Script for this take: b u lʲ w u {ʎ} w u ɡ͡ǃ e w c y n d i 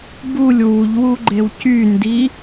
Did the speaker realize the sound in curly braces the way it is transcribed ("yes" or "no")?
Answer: yes